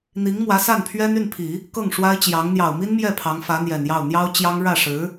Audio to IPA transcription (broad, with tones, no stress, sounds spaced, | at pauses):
n̪ i˧˥ ŋ m w ä˧˥ s a˥˩ n pʰ ɥ ɛ˥ n y˥˩ n pʰ i˨˩˦ | k ɤ˥˩ ŋ ʂ w a˥ ɪ̯ t͡ɕ j ɑ˧˥ ŋ n̪ j ɑ˨˩ ʊ̯ m i˥ n m j ɛ˥˩ pʰ ɑ˧˥ ŋ f ä˧˥ n̪ j ɛ˨˩ n j ɑ˥˩ ʊ̯ n̪ j ɑ˥ ʊ̯ t͡ɕ j ɑ˥ ŋ ɻ ä˥˩ ʂ ɻ̩˧˥